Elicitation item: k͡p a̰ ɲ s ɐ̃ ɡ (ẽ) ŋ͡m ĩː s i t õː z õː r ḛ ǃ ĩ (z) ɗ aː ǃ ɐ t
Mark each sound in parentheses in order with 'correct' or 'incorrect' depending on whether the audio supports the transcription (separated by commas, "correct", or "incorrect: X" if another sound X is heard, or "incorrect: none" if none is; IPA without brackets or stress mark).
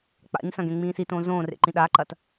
correct, incorrect: none